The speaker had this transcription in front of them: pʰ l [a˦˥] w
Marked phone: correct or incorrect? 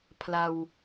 incorrect